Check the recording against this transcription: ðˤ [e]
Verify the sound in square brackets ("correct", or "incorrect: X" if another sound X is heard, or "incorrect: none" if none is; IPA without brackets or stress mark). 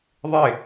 correct